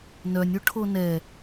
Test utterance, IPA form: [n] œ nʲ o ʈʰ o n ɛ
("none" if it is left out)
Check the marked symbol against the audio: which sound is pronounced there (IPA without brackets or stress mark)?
n